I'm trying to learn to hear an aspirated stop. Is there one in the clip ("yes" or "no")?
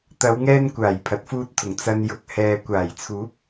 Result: yes